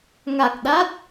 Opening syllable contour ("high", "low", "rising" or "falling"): low